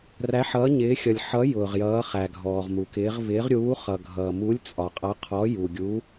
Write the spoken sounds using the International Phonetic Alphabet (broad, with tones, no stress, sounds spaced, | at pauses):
r æ˧˥ ħ ʌː˧˥ ɲ ɪː˧˥ xʲ ʌ˨ lʲ ħ ʌ˧˥ j ʊː˨ ʁ j ʌː˧˥ χ æ˨ ɡʱ ɔː˨ ʁ m u˨ k ɪː˧˥ ʁ v ɪː˧˥ ʁ ɾʲ uː˧˥ χ ʌ˨ ɡʱ ʌː˨ m u˧˥ lʲ t͡sʼ ɒ˨ qʼ ʌ˧˥ qʰ ɔ˧˥ j u˨ ɡʲ u˧˥